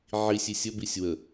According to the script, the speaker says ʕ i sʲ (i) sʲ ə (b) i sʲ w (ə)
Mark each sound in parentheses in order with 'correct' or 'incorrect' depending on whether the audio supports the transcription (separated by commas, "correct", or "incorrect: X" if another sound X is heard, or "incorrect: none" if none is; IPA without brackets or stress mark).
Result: correct, correct, correct